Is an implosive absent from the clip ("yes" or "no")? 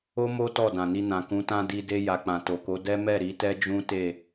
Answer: yes